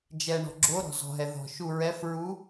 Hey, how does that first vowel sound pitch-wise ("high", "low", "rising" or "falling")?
low